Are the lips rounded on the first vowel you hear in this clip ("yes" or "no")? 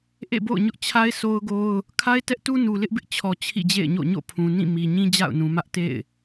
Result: no